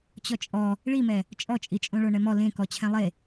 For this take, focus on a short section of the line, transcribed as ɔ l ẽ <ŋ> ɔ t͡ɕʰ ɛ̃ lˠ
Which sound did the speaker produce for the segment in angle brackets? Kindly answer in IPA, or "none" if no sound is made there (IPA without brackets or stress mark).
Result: k